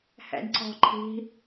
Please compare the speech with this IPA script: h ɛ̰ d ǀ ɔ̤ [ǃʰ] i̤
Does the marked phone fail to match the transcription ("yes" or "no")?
no